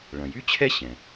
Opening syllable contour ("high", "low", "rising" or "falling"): low